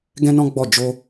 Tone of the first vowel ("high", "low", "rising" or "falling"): high